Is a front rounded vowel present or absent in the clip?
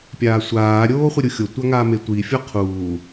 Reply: absent